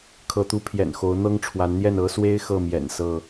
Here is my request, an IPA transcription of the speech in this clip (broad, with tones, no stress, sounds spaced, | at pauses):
kʰ ɤ˨˦ t̪ u˨˦ pʰ j ɛ̰˨˩ n x o˨˦ ʊ̯ n̪ ɤ˦ ŋ ʈ͡ʂʰ w a˨˦ n n̪ j ɛ˥˨ n ɤ˦ s w e˦ ɪ̯ x ɤ˥˨ m j ɛ̰˨˩ n s ɤ˥˨